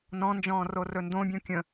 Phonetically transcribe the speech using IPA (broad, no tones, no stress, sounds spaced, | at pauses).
n ɔ̃ n d͡ʒ ɔ̃ː r o r ɵ n d õ bʲ ɔ̃ kʲ ə̃